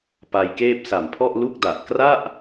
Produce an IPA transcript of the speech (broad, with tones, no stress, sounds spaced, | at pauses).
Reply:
p a˧ j k eː˥˩ p̚ s a˨˩ m pʰ ɔ˥˩ ʔ l u˥˩ k̚ d a˨˩ ʔ k r a˥˩ ʔ